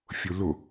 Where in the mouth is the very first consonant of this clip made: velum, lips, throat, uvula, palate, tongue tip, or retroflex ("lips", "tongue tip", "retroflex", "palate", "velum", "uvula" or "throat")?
lips